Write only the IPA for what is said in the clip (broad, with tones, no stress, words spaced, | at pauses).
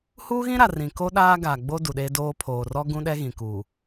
huː˦ɣĩ˦ɾa˨ rĩ˨ ko˦ ɗaː˦ɡa˨ɡ͡bo˦ du˨ɗeː˦doː˦ pʰoː˨rɔ˦ɡũ˦ɗɛ˦ ɣĩ˨kuː˨